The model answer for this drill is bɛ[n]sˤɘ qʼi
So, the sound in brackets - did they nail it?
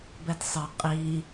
no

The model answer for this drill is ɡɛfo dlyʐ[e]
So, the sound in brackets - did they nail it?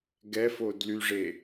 yes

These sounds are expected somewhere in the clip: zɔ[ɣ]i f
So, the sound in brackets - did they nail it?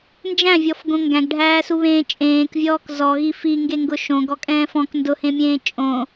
yes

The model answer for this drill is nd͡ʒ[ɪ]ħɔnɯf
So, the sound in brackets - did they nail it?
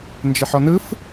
yes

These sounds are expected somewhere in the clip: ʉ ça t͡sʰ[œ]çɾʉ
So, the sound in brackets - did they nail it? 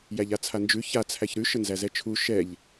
no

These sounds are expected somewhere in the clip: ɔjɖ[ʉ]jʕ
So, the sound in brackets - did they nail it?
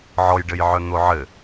no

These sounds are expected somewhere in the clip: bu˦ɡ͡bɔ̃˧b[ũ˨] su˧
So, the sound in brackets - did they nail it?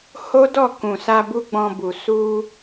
no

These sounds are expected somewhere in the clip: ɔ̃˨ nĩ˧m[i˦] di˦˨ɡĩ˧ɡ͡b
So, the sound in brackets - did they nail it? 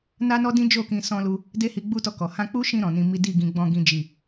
yes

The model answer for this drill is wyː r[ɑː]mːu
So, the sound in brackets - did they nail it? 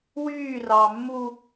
yes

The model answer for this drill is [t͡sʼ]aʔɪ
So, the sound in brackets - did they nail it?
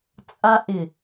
yes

